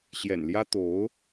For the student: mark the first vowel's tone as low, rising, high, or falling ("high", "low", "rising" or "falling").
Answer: low